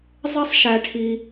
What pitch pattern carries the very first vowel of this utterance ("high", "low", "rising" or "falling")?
high